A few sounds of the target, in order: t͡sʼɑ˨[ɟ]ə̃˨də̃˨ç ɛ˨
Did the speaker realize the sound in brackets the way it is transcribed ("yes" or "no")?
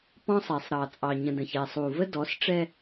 no